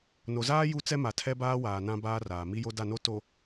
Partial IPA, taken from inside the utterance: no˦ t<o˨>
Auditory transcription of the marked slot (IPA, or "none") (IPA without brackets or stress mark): o˨